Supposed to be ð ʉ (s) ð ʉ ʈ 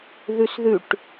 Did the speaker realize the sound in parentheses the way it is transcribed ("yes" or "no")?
yes